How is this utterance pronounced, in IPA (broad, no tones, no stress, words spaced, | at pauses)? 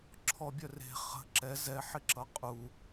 ǁʰɔbʲœre̤ χə̤ ǁɛ zɛħɪ ǁʌqʼu